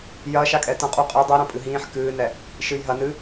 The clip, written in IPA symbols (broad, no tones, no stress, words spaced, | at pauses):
jɐːʃakʼɛ tɐ̃ qʼuqʼi dˤiɾɐ̃ pʼɨɦĩːħ kɨːnɛ | ʃɨjɦɐ nɨ